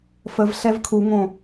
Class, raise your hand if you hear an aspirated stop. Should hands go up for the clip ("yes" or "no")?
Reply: yes